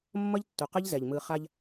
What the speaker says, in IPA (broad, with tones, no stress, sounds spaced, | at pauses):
mː ʌ˦ ʎ tː u˨ q ɯ˦ ʎ z ɛ˨ ʎ m ɯ˨ χ a˦ ʎ